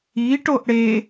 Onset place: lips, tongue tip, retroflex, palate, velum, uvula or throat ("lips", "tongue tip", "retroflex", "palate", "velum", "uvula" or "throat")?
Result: retroflex